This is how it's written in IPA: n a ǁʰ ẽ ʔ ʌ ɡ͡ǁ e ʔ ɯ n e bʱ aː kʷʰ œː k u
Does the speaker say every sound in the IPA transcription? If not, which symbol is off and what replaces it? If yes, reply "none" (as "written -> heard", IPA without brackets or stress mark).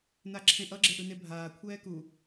œː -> ɛː